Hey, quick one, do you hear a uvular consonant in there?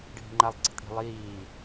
no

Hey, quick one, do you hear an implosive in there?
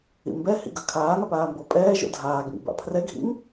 no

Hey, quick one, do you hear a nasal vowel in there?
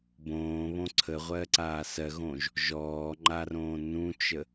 yes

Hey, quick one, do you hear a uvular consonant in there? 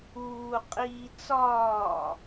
yes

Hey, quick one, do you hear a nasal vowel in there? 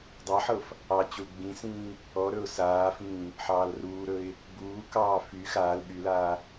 yes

